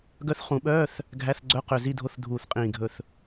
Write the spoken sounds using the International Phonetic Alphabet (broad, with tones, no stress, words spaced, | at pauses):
ɡœ˧˥θχũ˨˩˦ɓœː˧˥˧θ | ɡʱæ˧˥˧θɡ͡ǀœ˧˥˧qø˧˩ zi˧˥˧dʱo˧˥˧θdʱuː˧˩θqʼĩː˧˩ ɡʱɵ˧˩θ